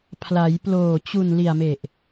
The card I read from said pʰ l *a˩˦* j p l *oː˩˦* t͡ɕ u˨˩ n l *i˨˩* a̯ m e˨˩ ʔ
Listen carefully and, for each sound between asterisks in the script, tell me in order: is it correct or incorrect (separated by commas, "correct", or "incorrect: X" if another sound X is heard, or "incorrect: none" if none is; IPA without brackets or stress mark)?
correct, incorrect: oː˨˩, correct